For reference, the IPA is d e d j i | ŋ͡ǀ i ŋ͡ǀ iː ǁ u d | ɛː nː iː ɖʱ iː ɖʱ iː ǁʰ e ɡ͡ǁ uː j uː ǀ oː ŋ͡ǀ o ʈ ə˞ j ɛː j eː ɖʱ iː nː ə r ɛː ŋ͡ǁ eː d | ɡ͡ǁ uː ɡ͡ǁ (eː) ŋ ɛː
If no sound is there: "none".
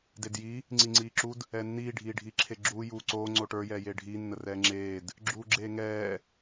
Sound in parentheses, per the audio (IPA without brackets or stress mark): eː